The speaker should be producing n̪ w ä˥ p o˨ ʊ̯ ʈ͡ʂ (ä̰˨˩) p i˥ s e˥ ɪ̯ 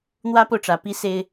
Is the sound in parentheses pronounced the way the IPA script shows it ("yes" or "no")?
no